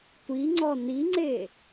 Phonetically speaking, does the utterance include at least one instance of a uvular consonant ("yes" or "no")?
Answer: no